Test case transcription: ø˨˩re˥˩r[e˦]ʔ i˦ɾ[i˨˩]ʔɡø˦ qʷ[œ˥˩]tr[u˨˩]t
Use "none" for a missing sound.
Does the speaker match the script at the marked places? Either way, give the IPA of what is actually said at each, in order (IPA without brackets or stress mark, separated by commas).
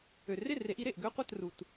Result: e˨˩˦, e˨˩, œ˥˩, u˨˩